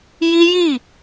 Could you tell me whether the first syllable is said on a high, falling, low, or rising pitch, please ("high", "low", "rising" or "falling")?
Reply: high